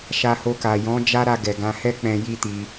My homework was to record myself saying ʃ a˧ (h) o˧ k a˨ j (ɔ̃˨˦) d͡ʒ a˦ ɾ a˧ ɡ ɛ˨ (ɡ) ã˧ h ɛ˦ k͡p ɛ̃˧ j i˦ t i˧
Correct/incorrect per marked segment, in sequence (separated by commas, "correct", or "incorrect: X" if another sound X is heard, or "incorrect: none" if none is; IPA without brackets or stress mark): correct, correct, correct